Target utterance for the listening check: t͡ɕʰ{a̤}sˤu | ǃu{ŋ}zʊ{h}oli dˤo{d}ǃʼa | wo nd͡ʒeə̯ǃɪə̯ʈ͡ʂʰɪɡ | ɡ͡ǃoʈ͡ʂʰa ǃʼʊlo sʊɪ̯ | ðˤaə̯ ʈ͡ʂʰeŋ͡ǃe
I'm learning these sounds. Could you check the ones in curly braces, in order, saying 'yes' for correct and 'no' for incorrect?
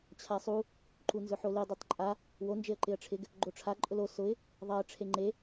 no, no, no, no

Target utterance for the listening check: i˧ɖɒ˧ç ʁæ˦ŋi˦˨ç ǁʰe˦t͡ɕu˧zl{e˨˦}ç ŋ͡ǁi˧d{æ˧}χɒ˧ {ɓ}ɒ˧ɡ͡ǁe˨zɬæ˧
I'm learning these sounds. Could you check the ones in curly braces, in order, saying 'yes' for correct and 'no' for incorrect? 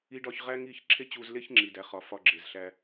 no, yes, no

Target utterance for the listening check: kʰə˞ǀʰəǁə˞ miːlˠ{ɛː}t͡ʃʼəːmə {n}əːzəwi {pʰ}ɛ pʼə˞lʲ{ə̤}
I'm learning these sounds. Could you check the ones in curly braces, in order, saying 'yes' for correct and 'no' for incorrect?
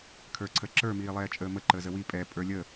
yes, no, no, no

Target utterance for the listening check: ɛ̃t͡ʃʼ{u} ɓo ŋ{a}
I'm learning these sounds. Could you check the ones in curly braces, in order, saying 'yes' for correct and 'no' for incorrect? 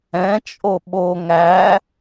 no, no

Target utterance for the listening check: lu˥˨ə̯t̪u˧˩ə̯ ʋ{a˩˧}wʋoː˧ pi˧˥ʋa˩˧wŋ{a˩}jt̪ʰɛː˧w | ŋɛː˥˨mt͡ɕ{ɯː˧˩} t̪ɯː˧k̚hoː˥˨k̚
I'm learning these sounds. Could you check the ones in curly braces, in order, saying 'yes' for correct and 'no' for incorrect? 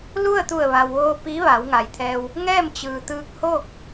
no, yes, no

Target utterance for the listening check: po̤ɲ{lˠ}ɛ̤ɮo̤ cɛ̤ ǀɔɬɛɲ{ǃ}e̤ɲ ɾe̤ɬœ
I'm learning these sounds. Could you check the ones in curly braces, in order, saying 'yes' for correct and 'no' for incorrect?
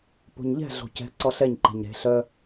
no, yes

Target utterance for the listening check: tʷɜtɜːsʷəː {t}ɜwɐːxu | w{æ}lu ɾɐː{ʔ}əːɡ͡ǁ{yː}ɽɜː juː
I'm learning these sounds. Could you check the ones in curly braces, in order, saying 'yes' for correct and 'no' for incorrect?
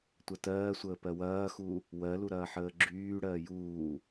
no, no, no, yes

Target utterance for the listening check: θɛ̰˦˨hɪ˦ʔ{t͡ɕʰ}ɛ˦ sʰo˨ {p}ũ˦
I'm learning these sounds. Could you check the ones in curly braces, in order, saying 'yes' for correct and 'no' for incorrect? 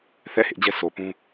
no, yes

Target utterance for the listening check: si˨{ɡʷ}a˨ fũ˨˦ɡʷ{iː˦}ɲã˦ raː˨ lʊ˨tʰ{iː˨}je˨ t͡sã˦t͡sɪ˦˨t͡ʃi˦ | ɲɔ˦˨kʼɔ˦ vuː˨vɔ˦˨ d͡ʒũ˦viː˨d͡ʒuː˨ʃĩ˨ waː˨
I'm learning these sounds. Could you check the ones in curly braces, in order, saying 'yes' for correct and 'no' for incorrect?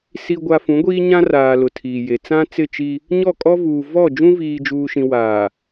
yes, yes, yes

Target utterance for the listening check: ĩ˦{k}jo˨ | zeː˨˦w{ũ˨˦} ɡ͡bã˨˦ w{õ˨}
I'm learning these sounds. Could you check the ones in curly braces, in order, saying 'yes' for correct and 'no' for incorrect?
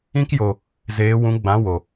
yes, yes, no

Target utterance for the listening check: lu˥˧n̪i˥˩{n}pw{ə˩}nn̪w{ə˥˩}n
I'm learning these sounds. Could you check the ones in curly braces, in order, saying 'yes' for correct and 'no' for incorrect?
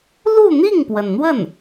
no, yes, yes

